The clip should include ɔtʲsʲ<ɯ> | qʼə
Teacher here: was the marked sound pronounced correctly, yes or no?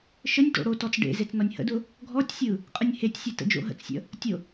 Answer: yes